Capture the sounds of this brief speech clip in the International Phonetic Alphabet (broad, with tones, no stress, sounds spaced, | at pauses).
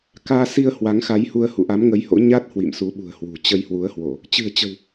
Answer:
k aː˧ s i˧ ə̯ h w a˨˦ ŋ x a˨˦ j h u˧ ə̯ h ṵ˧˨ ʔ a˨˦ m ŋ ə˨˦ j h o̰˧˥ ɲ a˦˥ t̚ h w ḭ˧˨ m s u˨˦ ɓ ṳ˨˩ ə̯ h w ṳ˨˩ t͡ɕ ə˧ j h w u˨˦ ə̯ h w o˧˩˨ | t͡ɕ ɨ̤˨˩ ə̯ t͡ɕ ə̤˨˩ w